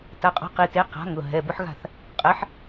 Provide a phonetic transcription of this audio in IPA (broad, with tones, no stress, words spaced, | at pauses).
ta˩˧˩qʼɔ̤˨˥qi˩˧˩ te˨˥ qa̤˨˥ŋʊ˩˧˩ɦɛ˩˧˩ bʊ˦ħɣa̤˥˩θ | qʼɛ˨˥ħ